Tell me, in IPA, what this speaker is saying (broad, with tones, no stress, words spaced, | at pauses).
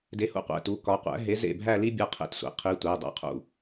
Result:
de˨˥hṵ˥˧qʷæ̰˩˧˩ tu˩˧˩ kɒ˨˥ qʷæ̰˨˥ɦe˨˥ zḛ˥˩bʱæ˥˧li˥ bʲɒ˥˧ qʰḛ˨˥tsʷḛ˨˥ qʰi˨˥tʷæ˩˧˩ dˤæ̰˥qʰṵ˥˩